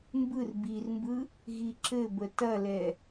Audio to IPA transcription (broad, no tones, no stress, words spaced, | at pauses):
mbɯr birmbɯ | ɣiǁɘbə tɐlɛ